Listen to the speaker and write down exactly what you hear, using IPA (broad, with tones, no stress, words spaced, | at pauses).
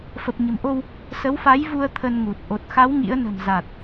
fə˨˩p̚ɲə̤˨˩mʔo˧w | sə˨˦wfa˨˦jvu˧ə̯ t̪ʰə˧nŋu˨˩t̚ ʔo˨˩t̚xa˨˦w ŋḭ˧˥ə̯ nə̤˨˩mza˨˩t̚